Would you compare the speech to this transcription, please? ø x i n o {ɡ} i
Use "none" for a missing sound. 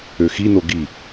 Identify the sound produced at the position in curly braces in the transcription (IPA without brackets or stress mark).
ɡ